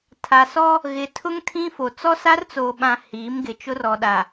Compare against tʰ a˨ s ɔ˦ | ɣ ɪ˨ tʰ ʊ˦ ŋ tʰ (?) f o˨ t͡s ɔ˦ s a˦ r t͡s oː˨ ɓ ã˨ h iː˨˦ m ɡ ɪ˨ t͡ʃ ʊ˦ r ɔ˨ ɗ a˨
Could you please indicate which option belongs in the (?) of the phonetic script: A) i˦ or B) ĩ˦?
B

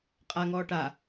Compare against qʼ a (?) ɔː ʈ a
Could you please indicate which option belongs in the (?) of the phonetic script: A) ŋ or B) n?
A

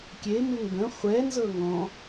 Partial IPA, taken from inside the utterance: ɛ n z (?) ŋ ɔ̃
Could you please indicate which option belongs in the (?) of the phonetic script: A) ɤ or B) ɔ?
A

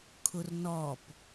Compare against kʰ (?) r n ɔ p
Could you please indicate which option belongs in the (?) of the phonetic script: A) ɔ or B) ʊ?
B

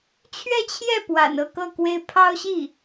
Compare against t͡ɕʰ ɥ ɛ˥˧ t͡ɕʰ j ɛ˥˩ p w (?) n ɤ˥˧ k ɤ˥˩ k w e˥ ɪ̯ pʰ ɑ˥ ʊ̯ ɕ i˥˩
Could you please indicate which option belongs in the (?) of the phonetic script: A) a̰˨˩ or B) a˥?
A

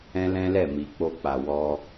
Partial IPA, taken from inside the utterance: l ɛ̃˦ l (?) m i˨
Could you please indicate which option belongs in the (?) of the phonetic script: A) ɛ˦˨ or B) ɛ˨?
A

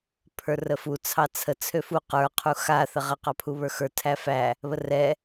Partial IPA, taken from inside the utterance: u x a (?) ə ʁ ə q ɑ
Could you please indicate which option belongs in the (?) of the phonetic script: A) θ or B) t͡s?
A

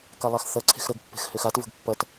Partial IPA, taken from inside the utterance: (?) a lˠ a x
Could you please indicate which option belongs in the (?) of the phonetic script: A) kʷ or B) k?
B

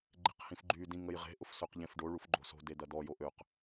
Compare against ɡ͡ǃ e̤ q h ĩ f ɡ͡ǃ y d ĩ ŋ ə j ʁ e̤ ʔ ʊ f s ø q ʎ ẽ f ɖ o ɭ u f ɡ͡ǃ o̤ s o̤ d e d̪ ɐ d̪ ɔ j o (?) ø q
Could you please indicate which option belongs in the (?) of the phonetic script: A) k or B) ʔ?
B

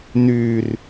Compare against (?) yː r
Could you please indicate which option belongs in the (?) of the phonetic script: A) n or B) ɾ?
A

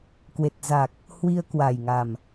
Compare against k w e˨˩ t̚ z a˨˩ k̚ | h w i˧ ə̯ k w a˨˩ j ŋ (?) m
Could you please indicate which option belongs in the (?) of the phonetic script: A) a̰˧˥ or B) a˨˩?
B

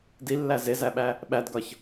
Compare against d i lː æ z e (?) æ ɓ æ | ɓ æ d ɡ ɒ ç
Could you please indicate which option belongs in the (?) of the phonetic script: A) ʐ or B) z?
B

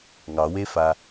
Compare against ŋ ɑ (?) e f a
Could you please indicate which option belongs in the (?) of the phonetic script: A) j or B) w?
B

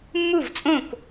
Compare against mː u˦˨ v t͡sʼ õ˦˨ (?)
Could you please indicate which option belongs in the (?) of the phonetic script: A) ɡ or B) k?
B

